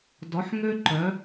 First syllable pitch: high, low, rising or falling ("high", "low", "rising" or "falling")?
rising